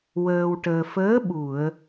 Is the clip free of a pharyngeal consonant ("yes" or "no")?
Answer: yes